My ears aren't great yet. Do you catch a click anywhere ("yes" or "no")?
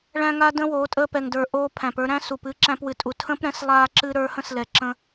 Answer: yes